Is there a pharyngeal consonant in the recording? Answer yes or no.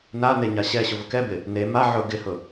yes